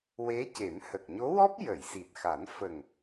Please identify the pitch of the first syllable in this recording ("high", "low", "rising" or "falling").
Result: rising